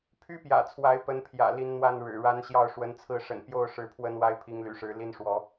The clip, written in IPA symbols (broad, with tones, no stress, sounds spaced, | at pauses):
pʰ y˦ p j ä̰˨˩ t͡sʰ w a˨˦ ɪ̯ p ə˨˦ n pʰ j ä̰˨˩ l i˨˦ n n̪ w a˥˨ n ɻ ɻ̩˨˩ ɻ a˦ n ɕ j ɑ˥˨ ʊ̯ ʂ w ə˨˦ n t͡sʰ ɹ̩˥˨ ʂ ə̰˨˩ n p j o˥˨ ʊ̯ ʂ ɻ̩˨˦ pʰ w ə˨˦ n w a˦ ɪ̯ pʰ i˨˦ ŋ l y̰˨˩ ʂ ɻ̩˨˦ l i˦ n ʂ w ɔ˨˦